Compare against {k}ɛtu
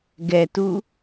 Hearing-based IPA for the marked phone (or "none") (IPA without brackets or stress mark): ɡ